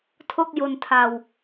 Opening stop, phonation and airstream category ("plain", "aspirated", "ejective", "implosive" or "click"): aspirated